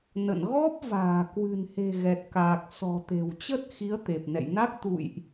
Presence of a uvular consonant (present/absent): absent